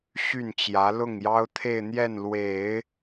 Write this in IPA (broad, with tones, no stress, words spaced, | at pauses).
ɕy˥˩nt͡ɕjä˧˥ lʊ˥˩ŋjɑ˥ʊ̯t̪ʰe˥˧ɪ̯ n̪jɛ˥˩nlwe˨˩˦ɪ̯